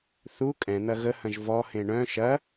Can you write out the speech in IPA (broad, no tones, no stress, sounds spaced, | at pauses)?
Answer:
θ u kʼ ɛ̃ n̪ ɐ ɣ ə h ɐ̃ ʒ v ɔ h ẽ ɳ œ̃ ʃ ɐ